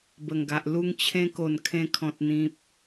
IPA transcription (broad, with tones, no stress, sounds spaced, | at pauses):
b ə˨˩ ŋ ɡ a˨ ʔ l u˧ ŋ t͡ɕʰ ẽ˧ k o˨˩ n kʰ ẽ˧ kʰ ɔ̃˨ t̚ n̪ ĩ˨ p̚